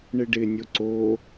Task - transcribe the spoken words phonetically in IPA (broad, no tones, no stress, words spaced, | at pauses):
ɳɪɖɪnʲo ǀo